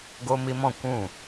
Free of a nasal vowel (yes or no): no